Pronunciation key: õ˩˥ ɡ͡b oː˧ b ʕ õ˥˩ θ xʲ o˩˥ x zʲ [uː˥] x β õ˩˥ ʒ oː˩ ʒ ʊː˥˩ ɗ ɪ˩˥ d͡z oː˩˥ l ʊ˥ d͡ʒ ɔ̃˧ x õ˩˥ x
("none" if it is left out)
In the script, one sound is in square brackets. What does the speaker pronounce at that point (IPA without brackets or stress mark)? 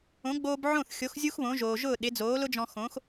u˥